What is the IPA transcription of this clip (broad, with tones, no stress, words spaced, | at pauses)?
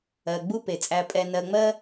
ɜ˩ ɡ͡bu˦pe˩t͡sʼæ˨ pʼɛ˨ nɜ˨ŋ͡mɜ˥